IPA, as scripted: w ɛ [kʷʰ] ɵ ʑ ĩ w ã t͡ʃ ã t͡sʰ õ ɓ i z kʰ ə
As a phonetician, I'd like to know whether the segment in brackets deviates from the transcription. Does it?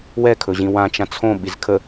yes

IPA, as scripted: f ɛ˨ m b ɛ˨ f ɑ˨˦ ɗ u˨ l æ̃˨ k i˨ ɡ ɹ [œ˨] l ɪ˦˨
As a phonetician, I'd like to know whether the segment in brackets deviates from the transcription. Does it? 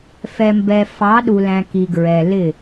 yes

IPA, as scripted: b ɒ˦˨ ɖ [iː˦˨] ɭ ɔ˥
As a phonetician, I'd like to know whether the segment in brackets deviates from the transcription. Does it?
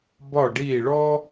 no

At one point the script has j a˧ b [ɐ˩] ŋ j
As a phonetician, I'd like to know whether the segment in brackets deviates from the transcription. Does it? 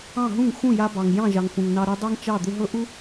yes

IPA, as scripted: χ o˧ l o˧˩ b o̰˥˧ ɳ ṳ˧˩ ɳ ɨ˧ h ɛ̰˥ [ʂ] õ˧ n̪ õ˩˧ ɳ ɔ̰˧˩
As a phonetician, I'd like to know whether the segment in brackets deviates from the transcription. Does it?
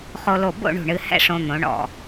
no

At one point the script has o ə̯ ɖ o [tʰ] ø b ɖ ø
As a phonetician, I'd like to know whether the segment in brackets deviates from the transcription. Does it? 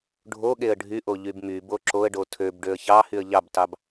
no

